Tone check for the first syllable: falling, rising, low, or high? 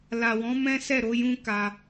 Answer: low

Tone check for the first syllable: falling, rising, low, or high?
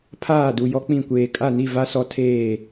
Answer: falling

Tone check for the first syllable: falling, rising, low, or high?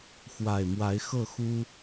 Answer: low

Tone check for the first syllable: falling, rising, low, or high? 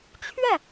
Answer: falling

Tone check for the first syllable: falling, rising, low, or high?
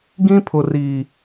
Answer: high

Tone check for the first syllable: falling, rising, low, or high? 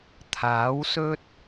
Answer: rising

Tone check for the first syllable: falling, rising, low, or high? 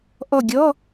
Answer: falling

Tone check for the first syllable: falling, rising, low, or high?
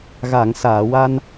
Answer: low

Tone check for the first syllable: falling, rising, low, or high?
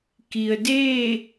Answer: low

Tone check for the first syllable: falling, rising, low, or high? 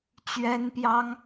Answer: high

